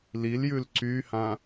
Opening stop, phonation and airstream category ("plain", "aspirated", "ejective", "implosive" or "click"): click